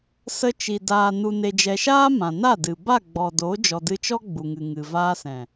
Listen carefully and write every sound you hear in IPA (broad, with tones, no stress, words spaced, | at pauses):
sə˧t͡ʃi˨ daː˨ nu˨ne˨d͡ʒɛ˨ʃaː˦ mã˨na˦˨dɨ˨ ba˦˨ ɡ͡bɔ˨ doː˨˦d͡ʒɔ˨dɨ˧t͡ʃɔ˦ ɡ͡bu˨ŋɨ˨ŋɨ˨ vaː˧sɛ̃˨